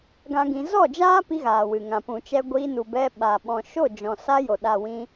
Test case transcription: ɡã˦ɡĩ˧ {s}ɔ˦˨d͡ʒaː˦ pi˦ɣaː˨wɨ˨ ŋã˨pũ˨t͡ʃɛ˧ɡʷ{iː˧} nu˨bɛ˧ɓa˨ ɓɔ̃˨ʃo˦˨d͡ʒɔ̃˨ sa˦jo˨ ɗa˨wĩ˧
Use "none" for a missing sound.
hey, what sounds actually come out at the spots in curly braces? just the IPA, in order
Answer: z, iː˧

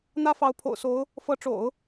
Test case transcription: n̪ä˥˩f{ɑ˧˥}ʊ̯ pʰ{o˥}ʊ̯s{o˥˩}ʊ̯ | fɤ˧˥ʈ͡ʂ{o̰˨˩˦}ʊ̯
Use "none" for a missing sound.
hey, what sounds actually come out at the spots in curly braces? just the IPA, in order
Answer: ɑ˧˥, o̰˨˩, o˧˥, o̰˨˩˦

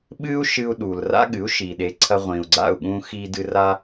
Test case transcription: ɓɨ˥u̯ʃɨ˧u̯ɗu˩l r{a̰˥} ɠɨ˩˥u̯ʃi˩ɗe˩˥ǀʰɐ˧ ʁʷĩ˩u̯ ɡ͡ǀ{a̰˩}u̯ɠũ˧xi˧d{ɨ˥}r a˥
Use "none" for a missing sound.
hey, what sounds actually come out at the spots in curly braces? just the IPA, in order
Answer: a̰˥, a̰˥˩, ɨ˧

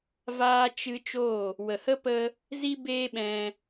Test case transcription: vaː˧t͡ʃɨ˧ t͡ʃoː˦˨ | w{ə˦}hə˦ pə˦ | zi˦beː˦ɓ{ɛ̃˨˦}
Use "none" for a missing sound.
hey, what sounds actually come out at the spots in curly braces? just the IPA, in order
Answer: ə˨, ɛ̃˧

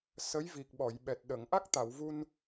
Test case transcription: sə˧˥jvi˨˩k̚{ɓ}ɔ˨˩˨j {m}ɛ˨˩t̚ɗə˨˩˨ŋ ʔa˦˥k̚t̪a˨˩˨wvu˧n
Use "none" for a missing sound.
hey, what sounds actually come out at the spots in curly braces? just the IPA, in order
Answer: ɓ, ɓ

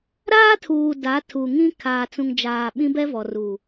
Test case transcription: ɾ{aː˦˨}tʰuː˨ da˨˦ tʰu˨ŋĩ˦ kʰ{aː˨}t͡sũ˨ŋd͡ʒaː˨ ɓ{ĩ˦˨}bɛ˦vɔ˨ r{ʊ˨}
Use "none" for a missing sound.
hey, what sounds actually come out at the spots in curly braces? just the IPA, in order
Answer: aː˦, aː˨, ĩ˦, u˨

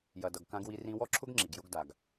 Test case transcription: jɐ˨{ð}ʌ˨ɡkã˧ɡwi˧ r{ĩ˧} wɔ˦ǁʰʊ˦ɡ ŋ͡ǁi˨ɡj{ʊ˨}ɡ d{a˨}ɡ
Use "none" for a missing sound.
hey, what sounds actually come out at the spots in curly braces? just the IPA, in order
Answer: d, ĩ˧, ʊ˦, a˨

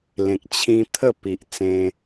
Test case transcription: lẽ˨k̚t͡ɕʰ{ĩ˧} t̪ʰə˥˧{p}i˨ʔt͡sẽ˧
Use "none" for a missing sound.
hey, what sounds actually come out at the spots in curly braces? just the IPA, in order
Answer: ĩ˧, p

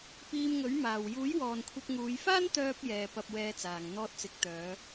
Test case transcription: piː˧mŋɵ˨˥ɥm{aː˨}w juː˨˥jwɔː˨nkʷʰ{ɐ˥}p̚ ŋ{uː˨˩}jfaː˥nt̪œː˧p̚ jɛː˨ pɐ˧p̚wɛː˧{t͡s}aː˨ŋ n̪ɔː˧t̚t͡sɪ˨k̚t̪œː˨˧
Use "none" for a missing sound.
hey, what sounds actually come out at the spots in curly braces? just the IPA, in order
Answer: aː˨, ɐ˧, uː˨˧, t͡s

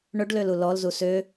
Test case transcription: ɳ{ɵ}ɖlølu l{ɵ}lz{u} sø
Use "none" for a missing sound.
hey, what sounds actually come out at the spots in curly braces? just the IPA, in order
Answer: ɵ, ɔ, u

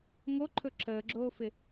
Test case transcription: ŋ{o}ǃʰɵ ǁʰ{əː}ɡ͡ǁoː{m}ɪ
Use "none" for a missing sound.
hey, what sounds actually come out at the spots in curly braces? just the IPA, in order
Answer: o, əː, f

